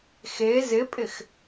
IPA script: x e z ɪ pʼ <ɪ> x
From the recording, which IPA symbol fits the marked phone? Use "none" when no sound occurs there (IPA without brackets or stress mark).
ɪ